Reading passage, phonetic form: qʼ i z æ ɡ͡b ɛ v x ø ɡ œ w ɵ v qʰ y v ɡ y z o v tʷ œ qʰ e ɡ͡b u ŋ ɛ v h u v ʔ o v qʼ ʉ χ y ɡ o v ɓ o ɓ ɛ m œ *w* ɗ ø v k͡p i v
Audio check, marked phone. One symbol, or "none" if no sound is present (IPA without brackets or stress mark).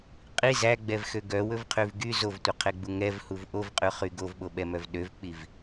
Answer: v